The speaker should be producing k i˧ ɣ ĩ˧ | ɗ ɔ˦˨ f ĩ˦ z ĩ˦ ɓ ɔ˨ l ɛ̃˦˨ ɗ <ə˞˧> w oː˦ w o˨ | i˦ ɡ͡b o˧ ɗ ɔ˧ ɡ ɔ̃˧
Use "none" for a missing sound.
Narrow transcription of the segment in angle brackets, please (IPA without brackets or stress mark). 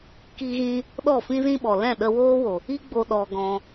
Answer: ə˧